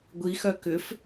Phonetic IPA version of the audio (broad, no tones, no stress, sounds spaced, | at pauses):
ɡʷ i x œ k ʏ f